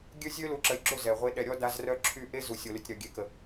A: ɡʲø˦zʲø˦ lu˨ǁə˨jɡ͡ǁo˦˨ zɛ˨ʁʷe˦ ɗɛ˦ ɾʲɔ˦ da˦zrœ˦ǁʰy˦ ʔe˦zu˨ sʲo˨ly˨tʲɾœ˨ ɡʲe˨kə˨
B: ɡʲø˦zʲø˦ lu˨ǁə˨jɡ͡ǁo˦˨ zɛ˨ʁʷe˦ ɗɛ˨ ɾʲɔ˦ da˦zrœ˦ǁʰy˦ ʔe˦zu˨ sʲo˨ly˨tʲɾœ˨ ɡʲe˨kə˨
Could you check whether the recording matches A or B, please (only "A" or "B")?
B